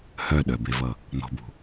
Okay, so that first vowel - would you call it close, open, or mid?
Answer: mid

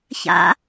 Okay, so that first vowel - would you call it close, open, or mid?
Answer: open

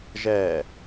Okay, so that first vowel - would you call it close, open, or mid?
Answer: mid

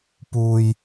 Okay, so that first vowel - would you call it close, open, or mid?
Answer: close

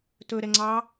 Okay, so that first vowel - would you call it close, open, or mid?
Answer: mid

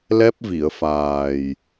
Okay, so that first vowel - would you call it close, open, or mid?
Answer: mid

